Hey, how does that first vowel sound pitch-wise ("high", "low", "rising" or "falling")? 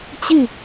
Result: falling